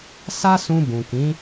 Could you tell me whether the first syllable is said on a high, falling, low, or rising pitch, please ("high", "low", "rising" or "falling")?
high